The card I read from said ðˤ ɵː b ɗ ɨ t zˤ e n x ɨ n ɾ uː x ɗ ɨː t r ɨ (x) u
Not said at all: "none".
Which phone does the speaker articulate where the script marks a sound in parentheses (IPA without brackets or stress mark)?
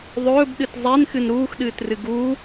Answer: ɡ